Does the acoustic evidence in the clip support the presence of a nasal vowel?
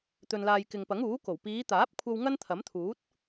no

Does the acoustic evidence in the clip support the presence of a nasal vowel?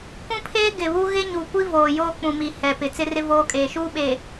yes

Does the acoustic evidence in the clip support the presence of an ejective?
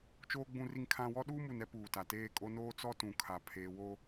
yes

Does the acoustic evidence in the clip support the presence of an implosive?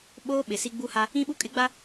yes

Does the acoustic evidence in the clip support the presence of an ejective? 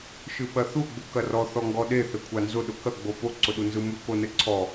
no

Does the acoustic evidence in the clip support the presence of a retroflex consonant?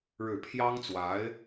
yes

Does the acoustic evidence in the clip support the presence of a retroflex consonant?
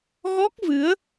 no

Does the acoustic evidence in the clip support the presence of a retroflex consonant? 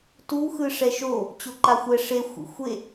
yes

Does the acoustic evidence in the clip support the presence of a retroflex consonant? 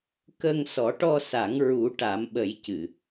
yes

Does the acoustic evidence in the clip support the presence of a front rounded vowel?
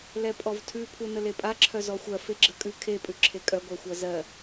yes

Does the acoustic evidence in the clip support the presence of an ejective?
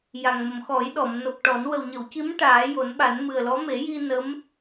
no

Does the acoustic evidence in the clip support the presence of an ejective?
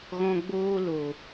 no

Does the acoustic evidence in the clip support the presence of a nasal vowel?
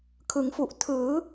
no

